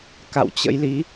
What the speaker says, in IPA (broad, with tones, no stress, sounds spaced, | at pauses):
k a̰˧˨ w t͡ɕ ə̰˧˥ j l i˨˦